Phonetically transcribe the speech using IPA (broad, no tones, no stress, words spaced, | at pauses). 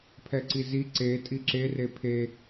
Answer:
pʰɛǀizi ǀe tʼiǁe repʰe